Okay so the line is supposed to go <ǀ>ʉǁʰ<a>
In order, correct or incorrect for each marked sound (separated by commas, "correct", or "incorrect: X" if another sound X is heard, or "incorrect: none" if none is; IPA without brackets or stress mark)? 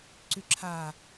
correct, correct